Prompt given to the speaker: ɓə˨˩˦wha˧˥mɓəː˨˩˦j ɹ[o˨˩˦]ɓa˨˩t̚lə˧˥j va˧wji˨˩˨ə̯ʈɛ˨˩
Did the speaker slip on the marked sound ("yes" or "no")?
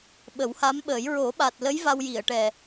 no